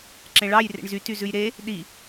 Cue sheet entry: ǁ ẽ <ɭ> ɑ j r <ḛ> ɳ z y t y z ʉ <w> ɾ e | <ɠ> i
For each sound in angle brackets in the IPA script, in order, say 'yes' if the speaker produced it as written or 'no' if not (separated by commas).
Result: yes, yes, no, no